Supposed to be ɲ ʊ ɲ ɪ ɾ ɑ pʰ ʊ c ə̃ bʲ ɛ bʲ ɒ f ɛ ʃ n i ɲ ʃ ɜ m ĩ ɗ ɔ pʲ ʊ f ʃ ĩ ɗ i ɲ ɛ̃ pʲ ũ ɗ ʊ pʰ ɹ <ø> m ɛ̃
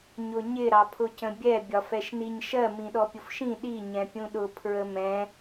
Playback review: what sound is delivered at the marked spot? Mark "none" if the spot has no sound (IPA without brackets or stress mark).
ə